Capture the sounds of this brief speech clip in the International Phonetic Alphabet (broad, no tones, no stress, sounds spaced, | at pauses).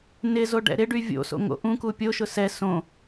n ɪ z o ɖ ɛ̰ ɾ ɪ ɖ y vʲ o̰ s o̰ ŋ o̰ ʔ ũ k u pʲ o ʃ ʊ s ɛ s õ